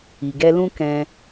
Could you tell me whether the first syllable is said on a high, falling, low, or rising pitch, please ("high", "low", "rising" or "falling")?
low